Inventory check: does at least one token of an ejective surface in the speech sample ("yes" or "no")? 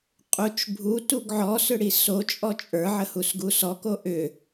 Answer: yes